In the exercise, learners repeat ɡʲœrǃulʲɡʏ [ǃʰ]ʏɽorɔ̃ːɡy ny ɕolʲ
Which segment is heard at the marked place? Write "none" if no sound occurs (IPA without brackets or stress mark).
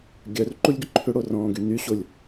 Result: ǃʰ